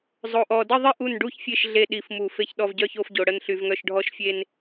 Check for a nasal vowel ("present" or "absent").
absent